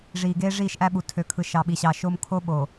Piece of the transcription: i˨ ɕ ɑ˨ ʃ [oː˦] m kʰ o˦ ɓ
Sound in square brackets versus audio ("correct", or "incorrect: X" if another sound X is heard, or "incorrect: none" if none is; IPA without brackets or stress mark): correct